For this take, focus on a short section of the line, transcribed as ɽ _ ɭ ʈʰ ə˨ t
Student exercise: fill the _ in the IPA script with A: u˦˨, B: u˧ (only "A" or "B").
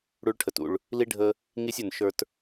B